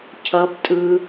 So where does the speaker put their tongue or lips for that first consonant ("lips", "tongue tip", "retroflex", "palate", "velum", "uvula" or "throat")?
palate